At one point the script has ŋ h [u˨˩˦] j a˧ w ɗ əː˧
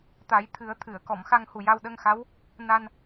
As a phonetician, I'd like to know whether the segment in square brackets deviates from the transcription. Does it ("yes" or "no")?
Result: yes